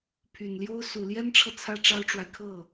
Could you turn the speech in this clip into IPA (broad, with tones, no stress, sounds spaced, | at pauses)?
pʰ y˨˩ n l j o˥ ʊ̯ s u˨˩ l j ɛ˥ n ʈ͡ʂʰ ɤ˨ t͡sʰ ä˥ ʈ͡ʂ ɑ˥ ʊ̯ ʈ͡ʂ w a˨ ɪ̯ kʰ ɤ˥˩